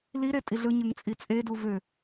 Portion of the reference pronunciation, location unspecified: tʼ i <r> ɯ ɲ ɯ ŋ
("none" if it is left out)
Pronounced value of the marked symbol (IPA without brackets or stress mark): ɮ